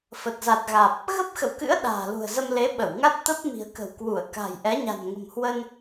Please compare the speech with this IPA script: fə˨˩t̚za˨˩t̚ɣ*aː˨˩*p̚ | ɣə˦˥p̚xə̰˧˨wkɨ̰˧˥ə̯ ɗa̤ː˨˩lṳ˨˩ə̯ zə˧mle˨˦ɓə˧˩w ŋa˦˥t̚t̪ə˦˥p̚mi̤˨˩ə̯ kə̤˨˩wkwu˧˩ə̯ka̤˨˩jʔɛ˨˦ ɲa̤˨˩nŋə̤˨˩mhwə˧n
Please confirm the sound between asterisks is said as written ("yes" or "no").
yes